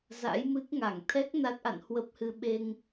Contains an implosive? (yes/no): yes